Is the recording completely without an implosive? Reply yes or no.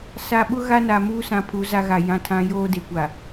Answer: no